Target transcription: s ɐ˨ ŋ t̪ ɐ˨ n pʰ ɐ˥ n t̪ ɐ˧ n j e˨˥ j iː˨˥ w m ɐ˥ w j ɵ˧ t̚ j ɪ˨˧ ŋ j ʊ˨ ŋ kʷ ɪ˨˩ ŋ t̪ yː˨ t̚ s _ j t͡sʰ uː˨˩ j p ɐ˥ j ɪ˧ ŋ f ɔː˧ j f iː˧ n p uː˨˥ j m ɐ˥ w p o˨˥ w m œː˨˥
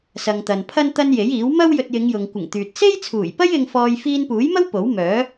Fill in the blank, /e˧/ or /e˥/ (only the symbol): e˥